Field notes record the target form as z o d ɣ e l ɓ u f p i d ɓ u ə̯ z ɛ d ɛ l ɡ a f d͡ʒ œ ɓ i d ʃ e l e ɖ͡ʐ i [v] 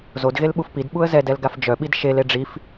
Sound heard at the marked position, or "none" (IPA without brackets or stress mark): f